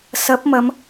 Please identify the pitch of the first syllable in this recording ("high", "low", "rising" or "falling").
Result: rising